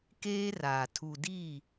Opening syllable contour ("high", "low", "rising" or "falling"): high